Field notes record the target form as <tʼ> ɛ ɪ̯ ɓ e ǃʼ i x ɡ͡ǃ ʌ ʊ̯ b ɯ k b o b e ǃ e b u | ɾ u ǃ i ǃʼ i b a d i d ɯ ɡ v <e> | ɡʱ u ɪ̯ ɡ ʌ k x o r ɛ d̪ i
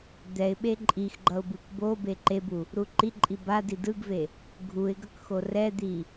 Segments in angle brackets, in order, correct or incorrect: incorrect: d̪, correct

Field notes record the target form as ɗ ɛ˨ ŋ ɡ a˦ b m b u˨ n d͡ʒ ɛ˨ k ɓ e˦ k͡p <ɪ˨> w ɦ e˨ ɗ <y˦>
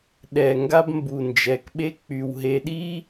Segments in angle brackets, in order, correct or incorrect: incorrect: y˨, incorrect: i˦

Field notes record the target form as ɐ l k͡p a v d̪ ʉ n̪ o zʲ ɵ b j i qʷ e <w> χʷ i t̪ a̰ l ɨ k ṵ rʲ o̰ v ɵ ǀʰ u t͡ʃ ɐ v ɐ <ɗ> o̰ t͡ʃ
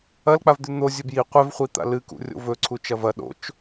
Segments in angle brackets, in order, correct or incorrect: incorrect: v, correct

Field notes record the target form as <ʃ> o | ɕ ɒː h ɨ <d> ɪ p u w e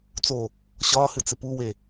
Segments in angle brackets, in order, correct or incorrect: incorrect: t͡s, incorrect: t͡s

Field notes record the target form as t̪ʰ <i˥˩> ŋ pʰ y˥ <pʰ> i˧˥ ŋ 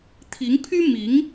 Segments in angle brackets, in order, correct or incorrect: incorrect: i˧˥, incorrect: m

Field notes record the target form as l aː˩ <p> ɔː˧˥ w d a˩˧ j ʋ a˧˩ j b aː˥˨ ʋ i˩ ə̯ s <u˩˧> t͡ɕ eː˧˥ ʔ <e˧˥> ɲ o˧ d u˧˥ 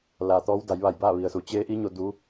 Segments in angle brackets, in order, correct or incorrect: incorrect: t̪, correct, incorrect: i˧˥

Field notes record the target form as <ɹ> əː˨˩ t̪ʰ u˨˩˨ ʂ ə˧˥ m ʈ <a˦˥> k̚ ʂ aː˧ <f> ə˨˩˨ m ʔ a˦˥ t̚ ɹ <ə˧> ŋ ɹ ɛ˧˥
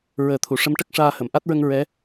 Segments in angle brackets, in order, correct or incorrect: correct, incorrect: ə˦˥, incorrect: h, correct

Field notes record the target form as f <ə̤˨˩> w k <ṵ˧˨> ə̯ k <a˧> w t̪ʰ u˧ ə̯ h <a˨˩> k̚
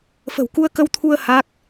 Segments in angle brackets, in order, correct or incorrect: correct, incorrect: u˧, incorrect: ə˧, incorrect: a˦˥

